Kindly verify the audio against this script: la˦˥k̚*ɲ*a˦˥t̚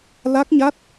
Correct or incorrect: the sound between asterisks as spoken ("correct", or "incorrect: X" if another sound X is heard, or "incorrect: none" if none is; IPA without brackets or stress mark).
correct